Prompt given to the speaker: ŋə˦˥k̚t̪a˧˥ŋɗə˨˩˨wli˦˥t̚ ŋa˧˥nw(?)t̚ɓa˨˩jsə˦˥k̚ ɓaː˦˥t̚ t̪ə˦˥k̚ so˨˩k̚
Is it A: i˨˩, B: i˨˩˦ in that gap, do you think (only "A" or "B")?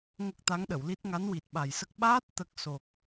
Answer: A